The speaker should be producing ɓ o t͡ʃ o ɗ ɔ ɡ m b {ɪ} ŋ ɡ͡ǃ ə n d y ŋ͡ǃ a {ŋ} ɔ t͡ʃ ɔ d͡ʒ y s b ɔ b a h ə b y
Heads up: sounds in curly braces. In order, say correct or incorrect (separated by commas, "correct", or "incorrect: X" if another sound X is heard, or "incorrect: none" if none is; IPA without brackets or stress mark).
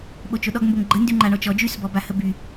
incorrect: ə, incorrect: ɳ